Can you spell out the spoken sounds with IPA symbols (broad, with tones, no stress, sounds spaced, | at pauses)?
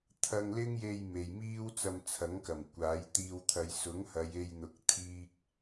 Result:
t̪ʰ ɐ˥ ŋ l ɪ˥ ŋ j e˧ j m e˨ j m iː˥ w t͡s ɐ˧ m t͡sʰ ɐ˨˥ ŋ k ɐ˨˩ m kʷ aː˨˥ j t̪ iː˧ w t̪ʰ ɐ˨˧ j s ʊ˨˥ ŋ h ɐ˨˧ j e˧ j n̪ ʊ˨˥ k̚ t̪ʰ iː˥ k̚